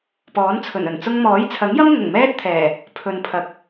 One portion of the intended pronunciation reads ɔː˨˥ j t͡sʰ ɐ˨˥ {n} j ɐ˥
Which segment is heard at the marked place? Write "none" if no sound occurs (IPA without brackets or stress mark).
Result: ŋ